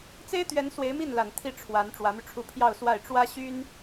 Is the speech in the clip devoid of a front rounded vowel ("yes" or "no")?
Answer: no